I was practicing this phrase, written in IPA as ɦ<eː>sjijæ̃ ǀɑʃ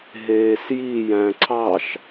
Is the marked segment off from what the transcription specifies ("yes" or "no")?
no